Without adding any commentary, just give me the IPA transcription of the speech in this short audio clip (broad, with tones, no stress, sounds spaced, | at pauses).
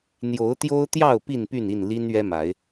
n̪ j o˨˦ ʊ̯ t̪ j o˦ ʊ̯ t̪ j ɑ˥˨ ʊ̯ p i˥˨ n p y˥˨ n i˥˨ n l i˦ n ɥ ɛ˦ m a˨˦ ɪ̯